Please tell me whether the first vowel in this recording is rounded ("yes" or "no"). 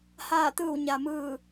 no